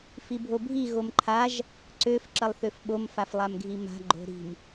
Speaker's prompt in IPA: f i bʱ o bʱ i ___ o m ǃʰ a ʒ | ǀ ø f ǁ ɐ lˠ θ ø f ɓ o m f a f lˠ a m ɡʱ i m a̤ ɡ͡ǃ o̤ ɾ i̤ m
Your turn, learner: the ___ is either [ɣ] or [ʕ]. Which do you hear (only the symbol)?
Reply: ɣ